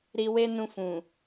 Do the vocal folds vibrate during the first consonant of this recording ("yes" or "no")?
yes